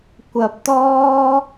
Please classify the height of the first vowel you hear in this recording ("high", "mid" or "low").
low